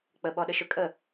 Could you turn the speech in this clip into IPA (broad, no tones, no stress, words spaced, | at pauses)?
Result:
k͡pəɓɔɗəʃø kʼə